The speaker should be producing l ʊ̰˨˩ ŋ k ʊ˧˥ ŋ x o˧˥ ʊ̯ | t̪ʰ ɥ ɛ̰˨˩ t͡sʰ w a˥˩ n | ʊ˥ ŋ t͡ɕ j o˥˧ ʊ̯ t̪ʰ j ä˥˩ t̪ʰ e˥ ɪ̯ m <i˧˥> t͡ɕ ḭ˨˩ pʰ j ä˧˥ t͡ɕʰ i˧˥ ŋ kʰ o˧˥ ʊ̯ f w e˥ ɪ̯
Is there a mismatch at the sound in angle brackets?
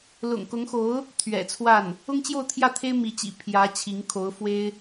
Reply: no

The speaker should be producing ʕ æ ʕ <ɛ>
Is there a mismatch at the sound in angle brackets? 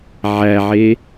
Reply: yes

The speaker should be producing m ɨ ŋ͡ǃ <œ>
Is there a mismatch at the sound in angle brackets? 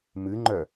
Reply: no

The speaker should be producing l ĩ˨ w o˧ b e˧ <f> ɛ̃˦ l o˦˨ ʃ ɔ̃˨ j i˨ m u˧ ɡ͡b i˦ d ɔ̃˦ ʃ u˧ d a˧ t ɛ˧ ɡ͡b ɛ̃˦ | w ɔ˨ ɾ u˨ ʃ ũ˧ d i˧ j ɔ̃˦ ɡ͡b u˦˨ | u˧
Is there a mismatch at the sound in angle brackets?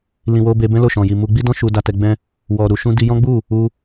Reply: yes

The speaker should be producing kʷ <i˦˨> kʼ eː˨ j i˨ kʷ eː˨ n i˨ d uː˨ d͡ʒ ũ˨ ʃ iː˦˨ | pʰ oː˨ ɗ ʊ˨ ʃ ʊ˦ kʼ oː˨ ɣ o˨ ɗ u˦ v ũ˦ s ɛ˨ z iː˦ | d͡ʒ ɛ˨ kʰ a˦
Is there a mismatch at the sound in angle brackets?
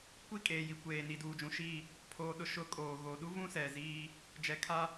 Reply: yes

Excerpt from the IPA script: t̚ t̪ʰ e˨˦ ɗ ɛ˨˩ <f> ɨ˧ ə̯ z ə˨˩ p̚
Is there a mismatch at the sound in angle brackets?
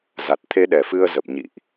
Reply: no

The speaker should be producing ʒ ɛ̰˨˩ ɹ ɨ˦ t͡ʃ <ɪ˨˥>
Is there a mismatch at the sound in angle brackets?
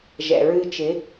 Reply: no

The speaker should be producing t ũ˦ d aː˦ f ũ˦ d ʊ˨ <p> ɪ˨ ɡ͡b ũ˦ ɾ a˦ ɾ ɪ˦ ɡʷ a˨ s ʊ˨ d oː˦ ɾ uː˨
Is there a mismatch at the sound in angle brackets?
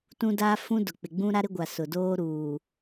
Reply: yes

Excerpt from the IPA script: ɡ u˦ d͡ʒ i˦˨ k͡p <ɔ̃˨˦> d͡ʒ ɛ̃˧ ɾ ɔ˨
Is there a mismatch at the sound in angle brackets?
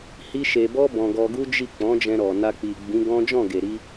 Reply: no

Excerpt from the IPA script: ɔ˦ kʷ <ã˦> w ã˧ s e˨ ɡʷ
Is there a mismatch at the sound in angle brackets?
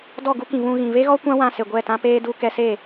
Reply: no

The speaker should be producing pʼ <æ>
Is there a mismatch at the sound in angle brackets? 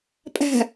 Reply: yes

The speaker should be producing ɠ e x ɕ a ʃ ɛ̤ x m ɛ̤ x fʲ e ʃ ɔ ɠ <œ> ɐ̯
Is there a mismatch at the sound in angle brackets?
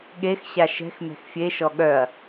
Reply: no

